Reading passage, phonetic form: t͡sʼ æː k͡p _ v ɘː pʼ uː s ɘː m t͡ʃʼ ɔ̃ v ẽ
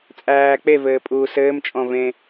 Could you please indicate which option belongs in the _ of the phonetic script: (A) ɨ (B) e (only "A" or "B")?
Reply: B